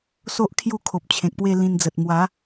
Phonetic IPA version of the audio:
s o˦ ʔ kʰ j u˥˧ kʰ o˨ p̚ t͡ɕʰ ẽ˨ k̚ p w e˥˧ l ĩ˧ n d͡z ə˨ t̚ m w a˨˦

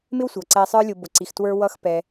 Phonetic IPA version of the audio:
m ɪ˥ w sʷ ʌ˩ ǀ ɛ˨ sˤ ə˞˦ lʲ ʊ˨ b ʊ˩ ǀ i˩ x t w ə˞˦ w ʌ˦ x p ɛ˩

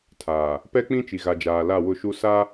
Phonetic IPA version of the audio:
tʰ aː˨ | p ɛ˦ k͡p ĩ˦ t͡ʃ i˨ ɣ a˨ d͡ʒ aː˨ l a˦˨ w ʊ˦˨ ʃ u˦ s a˦

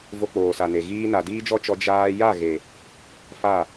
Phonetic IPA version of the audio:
v o˧ k͡p oː˨ s a˨ n e˨ ɣ iː˦ n a˨ d iː˦ d͡ʒ ɔ˦ t͡ʃ ɔ˧ d͡ʒ aː˧ j a˦˨ ɣ e˨ | f a˦˨

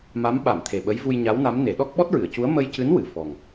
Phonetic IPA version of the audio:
m a˧˥ m ɓ a˨˩˨ m t̪ʰ e˨˩ ɓ ə˧˥ j v u˧ j ɲ a˧˥ w n a˧˥ m n e˨˩˦ ɗ ɔ˦˥ k̚ ɓ ɔ˦˥ t̚ ɹ ɨ˨˩˨ ə̯ c u˧˥ ə̯ m ə˧ j c ɨ˧˥ n w ɨ˨˩ f ɔ˨˩ ŋ

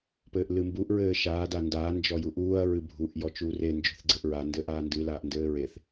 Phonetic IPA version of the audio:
p ɘː ʔ l ɨ m b u ʔ ɹ ɘː ʃ aː d a n d aː n d͡ʒ ɔ j u ʔ uː ɐ̯ ɹ ɨ bʱ u ʔ j ɔ t͡ʃ uː r e n d͡ʒ o̤ θ ɡ͡ǀ ɘ ʔ ɹ a n d ɘː ʔ aː n d ɨ l aː ʔ n d ɘː ɹ e θ

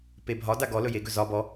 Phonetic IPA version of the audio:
p e bʱ ɒ d a ɡ ɔ l ɵ j e ɡ ɵ z ɒ b ɔ

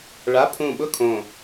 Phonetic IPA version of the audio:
ɭ a˧˥˧ pʰ ũ˧˩ ɓ ʊ˥˨ kʰ õ˧˩

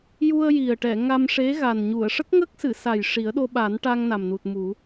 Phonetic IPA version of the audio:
j u˧ ə̯ j i˨˩ ə̯ ʈ ɛ˨˩˨ ŋ a˧ m ʂ e˧˥ ɣ a˨˩ n ɲ u˨˩˨ ə̯ ʂ ə˦˥ k̚ ŋ ə˦˥ k̚ s ɨ˨˩˨ s a˨˩ j ʂ i˨˩˦ ə̯ ɗ o˧ ɓ a˨˩˦ n ʈ a˧ ŋ n a˨˩ m n u˨˩ t̚ m u˨˩˦

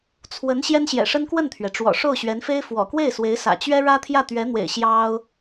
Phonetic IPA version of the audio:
t͡sʰ w ə˧˥ n ɕ j ɛ˥ n ɕ j ɛ̰˨˩ ʂ ə˥ n k w ə˥˩ n t̪ʰ ɥ ɛ˩ ʈ͡ʂ w ɔ̰˨˩ ʂ o˥˩ ʊ̯ ɕ ɥ ɛ˧˥ n f e˥ ɪ̯ f w ɔ̰˨˩ k w e˥˩ ɪ̯ s w e˧˥ ɪ̯ s ä̰˨˩ t͡ɕ ɥ ɛ˥ ɻ ä˥ t̪ʰ j ä˥˩ t̪ ɥ ɛ˧˥ n̪ w ḛ˨˩ ɪ̯ ɕ j ɑ˥ ʊ̯

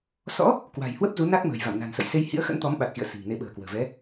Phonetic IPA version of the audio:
s ɔ̰˧˥ | k w a̤˨˩ j h w ə˦˥ p̚ z u˨˦ n a˦˥ k̚ m ə̤ː˨˩ j v a̰˧˨ m n a̤˨˩ n s ə̰˧˨ j s e˧ j h ḭ˧˥ ə̯ x ə̰˧˥ n t̪ ɔ˨˦ m ɓ a˨˩ t̚ x ḭ˧˨ ə̯ s i̤˨˩ ŋ n e˧ ɓ ə̤ː˨˩ k w ə̤ː˨˩ v ɛ˨˦

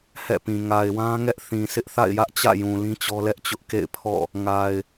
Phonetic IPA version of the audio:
h ɛ̰˦˨ p ĩ˨ ŋ a˨ ɪ̯ w ã˦ ŋ ɛ˦ ʔ θ ĩ˨ sʰ ɪ˦ ʔ θ a̰˦˨ ɪ̯ j ä˦ ʔ t͡ɕ ä̰˦˨ j ũ˨ l ĩ˦ t͡ɕ ɔ˦ l ɛ˦ ʔ t͡ɕ ʊ˦ ʔ k ḛ˦˨ ɪ̯ pʰ ɔ̰˦˨ | ŋ a˨ ɪ̯

